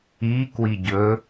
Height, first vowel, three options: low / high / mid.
high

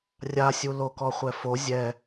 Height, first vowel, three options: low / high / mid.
low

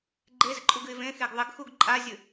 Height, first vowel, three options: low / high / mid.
mid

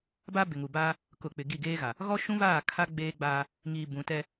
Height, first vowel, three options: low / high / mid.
low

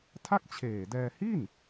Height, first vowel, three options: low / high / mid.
low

